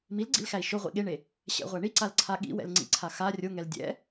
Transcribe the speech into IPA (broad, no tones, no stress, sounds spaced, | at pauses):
m i l ɡ͡ǀ ḭ l x æ i̯ ʃ o ʁʷ ḭ ɠ e ɳ e | ɕ ɛ̰ ʁʷ æ ɳ i ǀ a l ǀʰ a ɠ ḭ w ɛ̰ l ŋ͡ǀ ḭ ǀʰ a x a rʲ o ŋ ɛ l dʲ ɛ̰